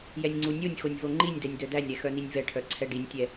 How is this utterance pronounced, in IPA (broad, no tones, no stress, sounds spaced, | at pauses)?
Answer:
j ɛ nʲ ŋ͡ǀ u nʲ o nʲ x o nʲ v o ŋ͡ǃ i nʲ d ɛ nʲ d œ d æ nʲ ɾ ɛ x œ n i nʲ v ɛ ʈʰ œ ǀʰ ɛ ɖ i nʲ tʲ ɛ